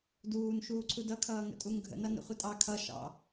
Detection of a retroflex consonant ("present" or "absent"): absent